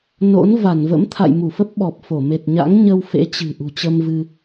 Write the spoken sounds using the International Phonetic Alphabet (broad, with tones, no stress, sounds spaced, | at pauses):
n o̰˧˥ n v a˧˩ n v ə̰˧˥ m t̪ʰ a̰˧˨ j m u˧˩ f ə˦˥ p̚ ɓ ɔ˨˩ p̚ f o˧˩ m e˨˩ t̚ ɲ a̰˧˥ ŋ ɲ ə˧ w f ḛ˧˥ t͡ɕ ɨ̤˨˩ ʔ ṳ˨˩ t͡ɕ ə˧ m v ɨ˧